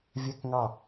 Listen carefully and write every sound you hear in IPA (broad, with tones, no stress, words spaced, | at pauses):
vʲɛ˥˨kŋɑ˥˨